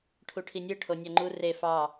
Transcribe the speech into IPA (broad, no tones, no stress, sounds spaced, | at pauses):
ʈʰ u ʈʰ i nʲ ɯ ʈʰ o nʲ ɑ ŋ͡ǃ u r e f ɑ